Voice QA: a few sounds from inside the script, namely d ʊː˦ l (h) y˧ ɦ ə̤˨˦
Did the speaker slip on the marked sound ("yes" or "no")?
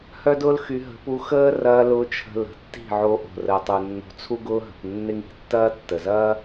yes